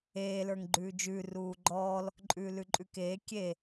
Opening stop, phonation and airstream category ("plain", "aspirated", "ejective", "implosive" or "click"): click